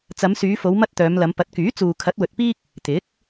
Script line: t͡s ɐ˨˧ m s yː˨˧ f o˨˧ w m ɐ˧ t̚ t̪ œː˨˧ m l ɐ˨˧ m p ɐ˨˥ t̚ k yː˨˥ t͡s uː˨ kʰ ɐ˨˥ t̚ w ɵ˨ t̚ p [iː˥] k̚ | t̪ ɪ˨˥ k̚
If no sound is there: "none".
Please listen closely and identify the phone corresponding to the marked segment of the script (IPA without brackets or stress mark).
iː˥